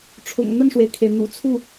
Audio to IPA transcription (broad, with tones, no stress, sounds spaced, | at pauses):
ʈ͡ʂʰ ʊ̰˨˩ ŋ n̪ ə˥˩ n ʂ w e˩ ɪ̯ kʰ e˩ ɪ̯ n̪ ṵ˨˩ t͡sʰ u˥˩